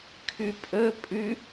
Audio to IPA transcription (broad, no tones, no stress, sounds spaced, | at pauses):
kʰ ʉ pʼ ɵ pʼ ʉ